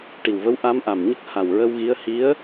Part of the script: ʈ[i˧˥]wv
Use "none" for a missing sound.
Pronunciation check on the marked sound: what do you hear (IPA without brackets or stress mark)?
i˨˩